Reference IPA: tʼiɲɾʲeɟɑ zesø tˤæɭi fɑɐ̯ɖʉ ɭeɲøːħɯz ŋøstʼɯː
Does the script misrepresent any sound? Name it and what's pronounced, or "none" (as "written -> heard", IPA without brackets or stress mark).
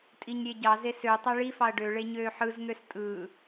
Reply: ʉ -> ø